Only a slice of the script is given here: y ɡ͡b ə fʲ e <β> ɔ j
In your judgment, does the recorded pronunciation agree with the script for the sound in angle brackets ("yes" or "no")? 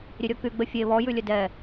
yes